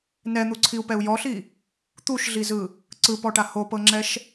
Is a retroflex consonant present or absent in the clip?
present